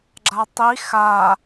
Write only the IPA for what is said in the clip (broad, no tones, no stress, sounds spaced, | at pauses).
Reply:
ɡ͡ǁ a tˤ i x a